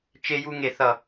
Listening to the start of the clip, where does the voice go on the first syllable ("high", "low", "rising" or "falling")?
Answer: high